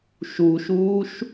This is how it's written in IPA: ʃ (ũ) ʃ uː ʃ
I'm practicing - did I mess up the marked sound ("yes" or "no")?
yes